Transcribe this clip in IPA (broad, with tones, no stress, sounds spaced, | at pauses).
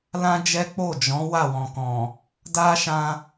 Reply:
l ã˦ d͡ʒ ɛ˦ k͡p o˦˨ d͡ʒ ɔ̃˨˦ w a˦˨ w ɔ̃˨ k ɔ̃˨ | d a˦ ʃ ã˧